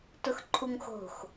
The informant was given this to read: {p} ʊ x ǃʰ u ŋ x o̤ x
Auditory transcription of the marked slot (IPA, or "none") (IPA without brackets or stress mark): t